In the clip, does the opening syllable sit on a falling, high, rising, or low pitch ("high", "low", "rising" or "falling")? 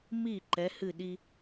falling